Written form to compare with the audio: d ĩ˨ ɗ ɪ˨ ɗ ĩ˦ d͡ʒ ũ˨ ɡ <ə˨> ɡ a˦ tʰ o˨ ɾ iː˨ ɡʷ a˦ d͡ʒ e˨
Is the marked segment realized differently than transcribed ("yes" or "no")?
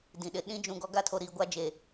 yes